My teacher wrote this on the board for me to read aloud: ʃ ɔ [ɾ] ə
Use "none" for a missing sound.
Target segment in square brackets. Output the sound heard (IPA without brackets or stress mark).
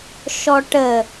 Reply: ʈ